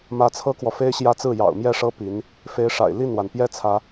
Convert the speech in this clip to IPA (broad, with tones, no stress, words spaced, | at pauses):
mä˧˥t͡sʰɤ˥kwɔ˨fe˥ɪ̯ ɕjä˥t͡sɹ̩˥˩ jɑ̰˨˩ʊ̯mjɛ˥˩ʂɤ˥ pi˧˥n | fe˧˥ɪ̯ʂa̰˨˩ɪ̯ li˥˩nwa˩npjɛ˥ t͡sʰä˧˥